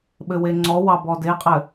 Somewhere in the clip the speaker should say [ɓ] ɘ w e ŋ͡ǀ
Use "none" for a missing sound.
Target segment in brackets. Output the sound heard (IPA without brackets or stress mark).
ɓ